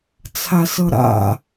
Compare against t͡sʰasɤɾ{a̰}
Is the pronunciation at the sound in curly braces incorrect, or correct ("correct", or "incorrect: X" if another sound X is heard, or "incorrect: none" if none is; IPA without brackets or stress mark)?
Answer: correct